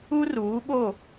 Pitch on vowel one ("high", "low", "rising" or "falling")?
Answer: high